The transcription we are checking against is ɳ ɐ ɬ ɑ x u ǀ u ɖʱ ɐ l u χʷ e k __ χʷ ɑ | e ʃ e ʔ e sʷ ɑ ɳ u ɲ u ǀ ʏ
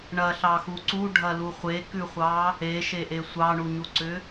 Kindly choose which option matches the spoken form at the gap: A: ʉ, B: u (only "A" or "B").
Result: A